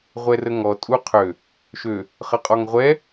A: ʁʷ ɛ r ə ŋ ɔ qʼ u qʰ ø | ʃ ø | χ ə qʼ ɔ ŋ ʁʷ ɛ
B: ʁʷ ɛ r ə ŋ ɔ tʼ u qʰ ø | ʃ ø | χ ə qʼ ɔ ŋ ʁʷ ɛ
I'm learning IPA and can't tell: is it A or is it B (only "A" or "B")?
B